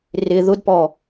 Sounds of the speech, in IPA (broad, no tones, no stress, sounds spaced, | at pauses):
r ɪ ð ʊ d p ɔ